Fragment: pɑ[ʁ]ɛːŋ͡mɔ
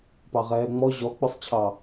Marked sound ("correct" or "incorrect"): correct